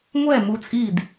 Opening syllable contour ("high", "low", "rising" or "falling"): falling